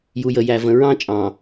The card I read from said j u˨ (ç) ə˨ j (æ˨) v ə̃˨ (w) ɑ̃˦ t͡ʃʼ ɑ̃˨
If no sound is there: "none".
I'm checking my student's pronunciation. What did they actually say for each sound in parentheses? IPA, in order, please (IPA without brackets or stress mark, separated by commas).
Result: j, æ˨, ɹ